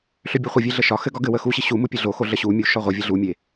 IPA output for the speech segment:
ɬøbʲɒχʷɘvʲe ɮəʃɒxɘ ɡɒɡɘwə xuɕi ɕumu pʲɘɮoxo ɮəɕumʲu ʃɒʁʷɘvʲə ɮumʲe

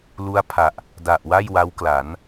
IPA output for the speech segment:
lu˦˥a̯ pʰa˨˩ʔ | da˨˩ʔwa˥˩j wa˦˥wkla˩˦n

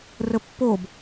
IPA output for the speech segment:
rəpːob

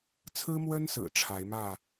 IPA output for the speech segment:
t͡sʰɹ̩˦mwə˦nsɹ̩˨˩ ʈ͡ʂʰa˨˦ɪ̯ mä˥˨

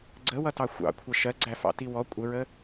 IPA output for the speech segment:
ɡ͡ǀəwʌtɑ xʷɑ̰kʷʰʌ ʃɜɡ͡ǀæfɑ̰ti wɔ kʷʼəɹə

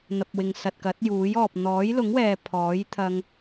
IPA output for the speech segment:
n̪ɐ˨p̚wɪ˨ŋsɐ˨t̚kɐ˨˥t̚ juː˨˥j ɔː˨p̚ n̪ɔː˨˥jlʊ˨˥ŋwɛː˨ pʰɔː˨˥jt̪ʰɐ˧ŋ

